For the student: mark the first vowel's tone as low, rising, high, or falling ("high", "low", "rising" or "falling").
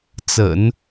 low